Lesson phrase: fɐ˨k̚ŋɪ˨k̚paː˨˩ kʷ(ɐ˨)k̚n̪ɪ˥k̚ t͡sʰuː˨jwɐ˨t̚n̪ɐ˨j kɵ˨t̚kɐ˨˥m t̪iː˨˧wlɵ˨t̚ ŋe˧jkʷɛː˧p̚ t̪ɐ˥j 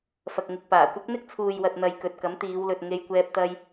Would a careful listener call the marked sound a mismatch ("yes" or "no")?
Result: yes